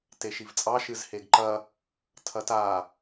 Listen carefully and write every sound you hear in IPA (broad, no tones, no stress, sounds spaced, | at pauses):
t e ʃ i v t͡sʼ ɑ ʃ ɨ z h e ɡ ǃ ɐ | tʰ ɐ t a